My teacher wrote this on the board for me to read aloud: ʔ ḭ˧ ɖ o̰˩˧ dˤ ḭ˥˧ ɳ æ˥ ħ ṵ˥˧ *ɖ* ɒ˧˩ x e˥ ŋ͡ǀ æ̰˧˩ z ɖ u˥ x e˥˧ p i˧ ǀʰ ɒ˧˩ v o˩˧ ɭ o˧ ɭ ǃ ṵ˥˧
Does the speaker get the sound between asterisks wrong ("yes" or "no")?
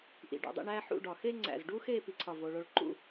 no